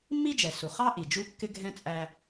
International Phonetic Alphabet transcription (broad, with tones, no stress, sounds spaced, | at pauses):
mː i˥ d͡ʒ ɛ˩ s u˩ χ ɑ˥ ʔ i˩ d͡ʒ u˥ kː ɪ˥ ɡʱ ɛ̃˥ t͡sʼ æ˧